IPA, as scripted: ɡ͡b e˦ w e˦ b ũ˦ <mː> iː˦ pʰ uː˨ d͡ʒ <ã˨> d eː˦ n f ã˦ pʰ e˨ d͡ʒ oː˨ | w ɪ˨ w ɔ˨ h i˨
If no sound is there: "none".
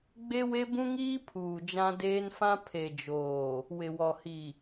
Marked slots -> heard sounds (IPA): ŋ, ã˦

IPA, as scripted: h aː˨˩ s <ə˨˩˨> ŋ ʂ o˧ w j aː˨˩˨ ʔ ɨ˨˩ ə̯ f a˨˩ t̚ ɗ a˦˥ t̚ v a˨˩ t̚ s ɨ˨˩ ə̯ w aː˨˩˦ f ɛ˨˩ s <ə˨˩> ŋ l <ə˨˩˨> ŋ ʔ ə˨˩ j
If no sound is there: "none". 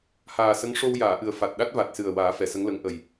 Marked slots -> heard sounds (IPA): ə˧˥, ə˧˥, ə˧˥

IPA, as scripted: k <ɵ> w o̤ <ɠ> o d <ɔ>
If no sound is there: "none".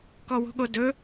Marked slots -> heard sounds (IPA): ɔ, ɠ, ɵ

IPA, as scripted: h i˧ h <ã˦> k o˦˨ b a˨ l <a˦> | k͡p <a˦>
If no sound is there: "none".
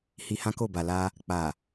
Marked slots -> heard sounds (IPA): ã˦, a˧, a˨

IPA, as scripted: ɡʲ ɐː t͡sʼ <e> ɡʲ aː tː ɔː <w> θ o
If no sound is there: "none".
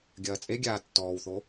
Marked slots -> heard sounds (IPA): e, w

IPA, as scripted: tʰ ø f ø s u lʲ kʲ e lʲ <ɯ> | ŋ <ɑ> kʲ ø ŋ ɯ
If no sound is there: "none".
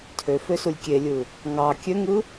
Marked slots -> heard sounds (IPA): ɯ, ɑ

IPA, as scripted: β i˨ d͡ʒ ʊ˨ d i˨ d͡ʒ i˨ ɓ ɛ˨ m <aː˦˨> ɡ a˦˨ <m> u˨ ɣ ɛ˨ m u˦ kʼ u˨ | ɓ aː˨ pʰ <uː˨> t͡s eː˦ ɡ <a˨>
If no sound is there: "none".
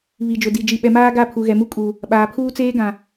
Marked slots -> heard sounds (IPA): aː˦, pʰ, uː˦, ã˨

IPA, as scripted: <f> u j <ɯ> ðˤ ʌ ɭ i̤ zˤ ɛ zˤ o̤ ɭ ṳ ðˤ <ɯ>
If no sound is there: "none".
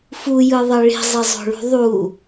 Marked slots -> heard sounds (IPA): f, ɯ, u

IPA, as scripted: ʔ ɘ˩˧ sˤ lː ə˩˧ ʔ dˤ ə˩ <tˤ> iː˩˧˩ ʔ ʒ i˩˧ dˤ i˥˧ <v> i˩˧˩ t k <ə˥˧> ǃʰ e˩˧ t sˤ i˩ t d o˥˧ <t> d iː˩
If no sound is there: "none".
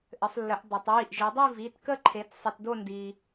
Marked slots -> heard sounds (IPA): tˤ, v, ə˥˧, n

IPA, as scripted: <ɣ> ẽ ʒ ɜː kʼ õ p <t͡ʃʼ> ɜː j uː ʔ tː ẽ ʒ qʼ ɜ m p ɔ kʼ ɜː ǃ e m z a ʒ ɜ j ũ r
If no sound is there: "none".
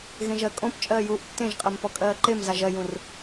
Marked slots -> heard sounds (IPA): ɣ, t͡ʃʼ

